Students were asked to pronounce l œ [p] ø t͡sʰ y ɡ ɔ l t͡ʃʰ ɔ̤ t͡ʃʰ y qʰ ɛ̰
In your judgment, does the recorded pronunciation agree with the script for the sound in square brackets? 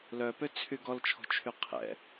yes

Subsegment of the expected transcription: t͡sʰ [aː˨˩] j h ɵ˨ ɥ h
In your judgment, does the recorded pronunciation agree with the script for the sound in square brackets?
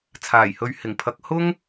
yes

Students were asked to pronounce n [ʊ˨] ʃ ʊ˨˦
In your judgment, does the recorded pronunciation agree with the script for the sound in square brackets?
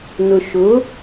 yes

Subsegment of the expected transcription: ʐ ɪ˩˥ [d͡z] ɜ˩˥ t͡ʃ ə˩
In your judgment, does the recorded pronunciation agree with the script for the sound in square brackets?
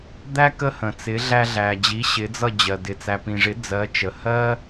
yes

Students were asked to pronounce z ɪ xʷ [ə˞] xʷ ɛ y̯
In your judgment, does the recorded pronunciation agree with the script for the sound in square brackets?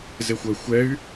no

